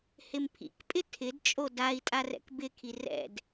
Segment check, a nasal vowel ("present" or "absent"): absent